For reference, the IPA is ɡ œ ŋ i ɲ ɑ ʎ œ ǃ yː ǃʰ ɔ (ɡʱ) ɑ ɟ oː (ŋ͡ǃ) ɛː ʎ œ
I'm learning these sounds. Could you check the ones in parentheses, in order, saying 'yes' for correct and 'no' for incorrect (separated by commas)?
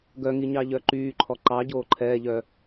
no, no